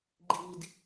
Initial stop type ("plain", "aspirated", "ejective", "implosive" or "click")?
click